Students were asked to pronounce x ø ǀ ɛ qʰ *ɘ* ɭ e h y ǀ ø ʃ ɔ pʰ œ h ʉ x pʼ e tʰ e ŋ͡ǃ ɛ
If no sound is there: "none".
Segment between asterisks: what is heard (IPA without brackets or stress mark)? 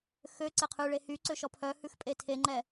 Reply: ʉ